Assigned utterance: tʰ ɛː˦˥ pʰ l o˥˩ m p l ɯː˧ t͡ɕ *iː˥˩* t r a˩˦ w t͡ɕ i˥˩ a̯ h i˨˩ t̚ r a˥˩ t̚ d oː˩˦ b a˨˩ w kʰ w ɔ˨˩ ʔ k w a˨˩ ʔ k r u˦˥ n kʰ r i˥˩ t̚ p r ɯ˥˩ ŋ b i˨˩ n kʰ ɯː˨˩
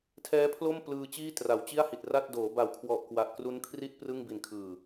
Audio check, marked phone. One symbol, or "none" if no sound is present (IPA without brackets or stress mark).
iː˥˩